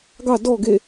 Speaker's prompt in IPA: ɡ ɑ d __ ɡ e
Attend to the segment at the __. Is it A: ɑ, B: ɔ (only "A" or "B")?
B